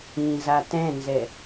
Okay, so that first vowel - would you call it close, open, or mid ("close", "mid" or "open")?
close